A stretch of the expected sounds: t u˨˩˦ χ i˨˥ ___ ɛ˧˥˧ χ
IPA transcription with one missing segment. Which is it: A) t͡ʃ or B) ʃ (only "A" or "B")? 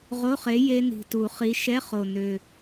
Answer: B